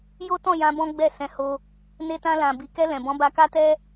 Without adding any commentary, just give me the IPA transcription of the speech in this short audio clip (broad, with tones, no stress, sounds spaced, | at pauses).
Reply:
j o˦ t ɔ̃˦˨ j ã˧ b ɔ̃˦ ɡ͡b ɛ˦˨ s ɛ̃˨˦ h o˧ | n e˧ t ã˧ l ã˨ b i˨ k ɛ˧ l ɛ̃˨ b ɔ̃˨˦ b a˧ k a˦ t ɛ˦